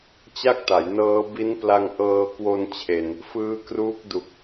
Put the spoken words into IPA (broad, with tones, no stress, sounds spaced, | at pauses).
t͡ɕ a˥˩ k̚ t a˩˦ j n ɤː˦˥ b i˦˥ n p l a˧ ŋ ʔ ɤː˧ k w o˧ n t͡ɕʰ e˨˩ n | f ɯː˦˥ k r uː˦˥ k̚ d u˨˩ k̚